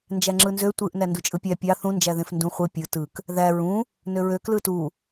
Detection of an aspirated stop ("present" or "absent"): absent